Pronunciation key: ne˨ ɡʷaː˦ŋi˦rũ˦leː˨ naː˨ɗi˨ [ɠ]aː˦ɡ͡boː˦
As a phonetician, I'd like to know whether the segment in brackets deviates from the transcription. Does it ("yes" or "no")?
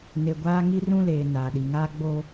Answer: yes